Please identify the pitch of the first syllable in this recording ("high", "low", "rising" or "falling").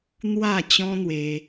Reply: falling